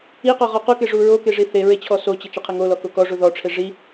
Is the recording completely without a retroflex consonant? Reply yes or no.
no